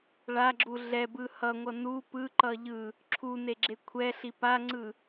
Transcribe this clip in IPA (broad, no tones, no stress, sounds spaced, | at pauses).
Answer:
ɭ a ɡ͡ǁ u ɮ ɛ b ɯ h ʌ ŋʷ ʌ n u p ɯ ǃ ʌ ʎ ɯ | ǁʰ u n e ɡ͡ǁ e kʷʰ ɛ ɬ i p a ŋ͡ǀ ɯ